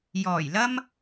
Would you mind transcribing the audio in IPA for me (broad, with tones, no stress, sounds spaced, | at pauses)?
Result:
j ɔː˨˩ j l ɐ˥ m